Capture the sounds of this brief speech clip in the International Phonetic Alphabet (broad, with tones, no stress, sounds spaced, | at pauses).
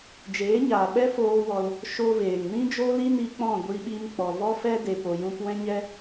d͡ʒ eː˨˦ ɲ aː˨ ɓ ɛ˦ f oː˧ w ɔ˧ l | ʃ o˦ v eː˨ ŋ n ĩ˦ d͡ʒ o˦ l i˦ n i˧ k͡p ɔ̃˦˨ ɡʷ i˧ ɓ i˧ m k͡p ɔ˨ v ɔ˦ f ɛ˦ d e˨ p o˨ j ũ˧ p w ɛ̃˦ ɲ ɛ˦